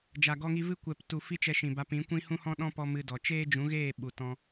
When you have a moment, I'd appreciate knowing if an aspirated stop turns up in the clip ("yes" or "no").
no